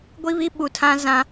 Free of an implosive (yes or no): no